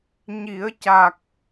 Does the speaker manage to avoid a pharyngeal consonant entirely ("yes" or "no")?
yes